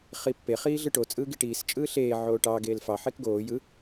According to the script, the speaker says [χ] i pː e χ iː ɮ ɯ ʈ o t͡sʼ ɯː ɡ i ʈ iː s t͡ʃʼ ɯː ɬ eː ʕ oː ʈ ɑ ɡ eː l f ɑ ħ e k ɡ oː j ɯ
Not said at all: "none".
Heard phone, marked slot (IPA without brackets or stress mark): χ